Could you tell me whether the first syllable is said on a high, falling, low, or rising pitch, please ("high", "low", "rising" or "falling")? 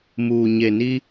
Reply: low